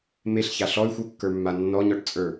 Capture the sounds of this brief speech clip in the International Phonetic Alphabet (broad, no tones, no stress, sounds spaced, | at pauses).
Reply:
m e ɬ ç a ɬ ɔ y̯ xʷ ə˞ kː ə˞ mː a nː ɔ ɲ ɔ ʈ t͡sʼ ə˞